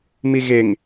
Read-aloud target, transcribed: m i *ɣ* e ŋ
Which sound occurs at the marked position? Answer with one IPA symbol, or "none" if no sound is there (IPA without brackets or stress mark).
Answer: ɣ